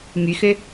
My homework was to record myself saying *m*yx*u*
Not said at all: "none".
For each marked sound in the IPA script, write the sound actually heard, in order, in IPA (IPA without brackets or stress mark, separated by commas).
m, ø